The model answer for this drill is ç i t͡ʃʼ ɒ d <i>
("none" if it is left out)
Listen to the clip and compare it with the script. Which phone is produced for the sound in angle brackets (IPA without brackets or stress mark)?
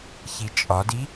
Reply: i